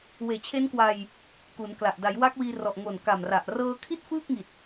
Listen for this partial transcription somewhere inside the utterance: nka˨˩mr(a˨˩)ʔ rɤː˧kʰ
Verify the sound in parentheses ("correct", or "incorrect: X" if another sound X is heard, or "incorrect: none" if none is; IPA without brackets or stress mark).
correct